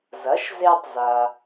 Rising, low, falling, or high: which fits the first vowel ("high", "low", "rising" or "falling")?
rising